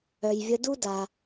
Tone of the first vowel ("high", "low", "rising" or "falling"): low